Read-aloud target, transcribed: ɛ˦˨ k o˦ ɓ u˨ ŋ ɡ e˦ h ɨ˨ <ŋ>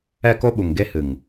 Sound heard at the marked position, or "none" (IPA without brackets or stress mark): ŋ